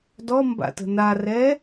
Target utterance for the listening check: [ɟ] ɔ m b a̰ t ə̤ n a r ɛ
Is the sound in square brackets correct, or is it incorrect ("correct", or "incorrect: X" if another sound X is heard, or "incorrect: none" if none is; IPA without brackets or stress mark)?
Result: incorrect: d